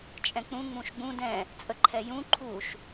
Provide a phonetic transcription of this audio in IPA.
t͡ʃʼ ɛ̃ k͡p ũ ŋ͡m ũ ʃ ɡ͡b ũ d ɛ̃ | t͡sʼ ə ǃʰ ɛ j ũ ǃʰ u ʃ

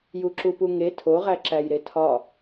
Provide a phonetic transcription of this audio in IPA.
j u ǁ u p u ŋ e tʰ o ʁ æ ǁ æ j ɾ e tʰ ɒ

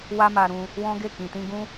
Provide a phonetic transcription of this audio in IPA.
w a˦ m a˧ ɾ ũ˧ | w ɔ̃˦ ɡ e˦˨ k ĩ˨ t ĩ˧ ɡ ũ˦

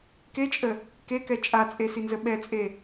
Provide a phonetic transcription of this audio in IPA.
k e t͡ʃʼ ə | k e k ɛ t͡ʃʼ a t͡sʼ e s i n z ə ɓ ɛ t͡sʼ e

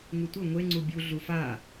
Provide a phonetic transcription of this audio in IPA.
ŋ u tʷ ɤ ŋʷ e ŋ͡ǀ u bʲ u ɮ u f a

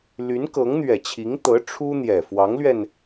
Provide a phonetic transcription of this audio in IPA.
l y˧˥ n k ɤ˧˥ ŋ n̪ ɥ ɛ˨˩ t͡ɕʰ i˧˥ ŋ t̪ ɤ˧˥ ʈ͡ʂʰ u˥ n̪ j ɛ˨˩ f w ɑ˧˥ ŋ l ɥ ɛ˧ n

